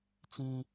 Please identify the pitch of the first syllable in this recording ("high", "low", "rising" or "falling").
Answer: high